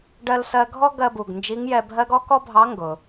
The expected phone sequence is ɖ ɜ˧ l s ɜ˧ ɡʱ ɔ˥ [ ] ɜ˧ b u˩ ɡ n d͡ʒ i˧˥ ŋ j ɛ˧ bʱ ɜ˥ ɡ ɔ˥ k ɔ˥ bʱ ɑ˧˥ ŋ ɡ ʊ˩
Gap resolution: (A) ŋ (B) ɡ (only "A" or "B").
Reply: B